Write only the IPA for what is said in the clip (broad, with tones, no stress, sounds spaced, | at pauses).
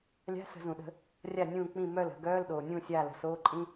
lʲ a̤˧˥˧ s ə̤˧˩˧ z ũ˩ ɗ ə̤˧˩˧ | rʲ a˥˩ nʲ ũː˥˩ k͡p ĩ˥˩ m œ˥˩ l ə̤˧˩˧ ɡ œː˧˥˧ l ɗ oː˩ nʲ ũː˥˩ sʲ aː˥˩ l ə̤˩ s oː˧˥˧ ǃʼ ĩ˧˥˧